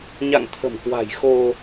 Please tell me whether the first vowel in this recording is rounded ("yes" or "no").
no